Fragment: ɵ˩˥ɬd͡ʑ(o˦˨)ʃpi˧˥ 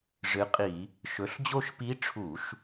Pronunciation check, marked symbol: correct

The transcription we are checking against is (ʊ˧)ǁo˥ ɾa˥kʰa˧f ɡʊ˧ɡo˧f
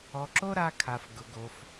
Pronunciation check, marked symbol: incorrect: ɔ˧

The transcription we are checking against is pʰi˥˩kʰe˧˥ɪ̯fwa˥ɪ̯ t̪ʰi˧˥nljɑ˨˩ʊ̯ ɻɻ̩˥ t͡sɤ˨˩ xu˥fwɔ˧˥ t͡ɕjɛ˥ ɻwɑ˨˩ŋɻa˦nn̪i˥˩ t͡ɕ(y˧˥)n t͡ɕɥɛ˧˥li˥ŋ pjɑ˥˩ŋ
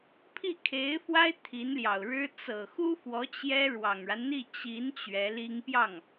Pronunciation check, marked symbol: incorrect: i˧˥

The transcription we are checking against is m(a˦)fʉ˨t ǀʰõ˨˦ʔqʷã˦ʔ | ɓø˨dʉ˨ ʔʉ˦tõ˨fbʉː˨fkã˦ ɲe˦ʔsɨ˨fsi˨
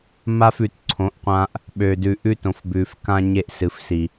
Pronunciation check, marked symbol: correct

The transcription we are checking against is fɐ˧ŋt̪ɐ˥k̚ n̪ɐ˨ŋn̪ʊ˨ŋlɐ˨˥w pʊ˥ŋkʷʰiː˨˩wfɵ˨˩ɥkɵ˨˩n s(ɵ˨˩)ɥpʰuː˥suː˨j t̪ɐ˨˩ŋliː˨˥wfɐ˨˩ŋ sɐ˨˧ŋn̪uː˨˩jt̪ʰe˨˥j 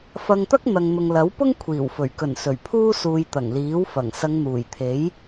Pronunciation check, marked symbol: correct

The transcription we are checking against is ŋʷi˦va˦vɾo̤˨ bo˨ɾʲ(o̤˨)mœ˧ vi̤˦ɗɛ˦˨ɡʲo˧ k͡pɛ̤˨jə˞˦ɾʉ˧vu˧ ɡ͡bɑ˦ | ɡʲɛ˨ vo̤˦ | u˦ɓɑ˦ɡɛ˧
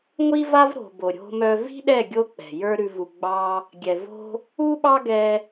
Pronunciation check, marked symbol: incorrect: o̤˧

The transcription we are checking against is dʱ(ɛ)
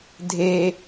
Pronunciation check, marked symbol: incorrect: e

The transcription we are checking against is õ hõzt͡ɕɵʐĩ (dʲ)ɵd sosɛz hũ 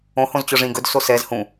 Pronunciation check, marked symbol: incorrect: ɡ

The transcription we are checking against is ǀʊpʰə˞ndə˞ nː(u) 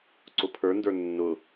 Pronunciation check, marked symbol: incorrect: ʊ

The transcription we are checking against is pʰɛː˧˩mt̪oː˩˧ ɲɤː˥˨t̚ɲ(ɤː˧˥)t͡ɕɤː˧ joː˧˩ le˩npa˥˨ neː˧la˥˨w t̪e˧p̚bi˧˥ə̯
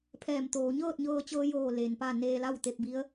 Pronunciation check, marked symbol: incorrect: ɤː˧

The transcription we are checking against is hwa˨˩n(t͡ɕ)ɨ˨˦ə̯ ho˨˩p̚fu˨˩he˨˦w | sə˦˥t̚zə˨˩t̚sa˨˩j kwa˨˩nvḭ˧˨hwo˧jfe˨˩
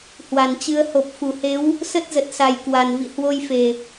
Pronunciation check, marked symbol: correct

